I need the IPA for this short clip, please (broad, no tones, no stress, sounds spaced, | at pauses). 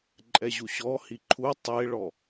ǃʼ ɛ ʑ u ɕ ɔ h i ǃʰ u tˤ e ɭ ɔ